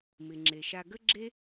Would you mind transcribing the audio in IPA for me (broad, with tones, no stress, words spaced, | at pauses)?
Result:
mɪ˩ŋ͡ǁe˩ʃa˧ ɡə˥ɡ͡ǁe˥